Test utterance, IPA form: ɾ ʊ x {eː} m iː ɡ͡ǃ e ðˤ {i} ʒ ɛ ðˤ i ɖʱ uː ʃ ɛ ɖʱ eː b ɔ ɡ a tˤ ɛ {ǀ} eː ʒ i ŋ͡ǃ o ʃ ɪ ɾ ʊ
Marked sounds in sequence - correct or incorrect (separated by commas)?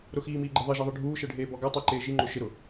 incorrect, incorrect, incorrect